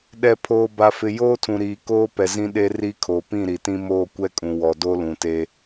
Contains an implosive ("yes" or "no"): yes